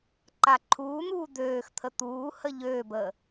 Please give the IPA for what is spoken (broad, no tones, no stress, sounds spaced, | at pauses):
ǃ a ǃʰ uː n̪ uː d̪ øː x t̪ʰ ə t̪ uː h ə ʎ øː b əː